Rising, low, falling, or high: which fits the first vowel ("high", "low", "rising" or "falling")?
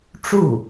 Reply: falling